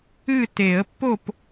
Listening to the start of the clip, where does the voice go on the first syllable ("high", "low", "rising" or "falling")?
falling